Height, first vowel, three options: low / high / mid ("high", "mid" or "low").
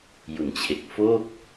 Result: high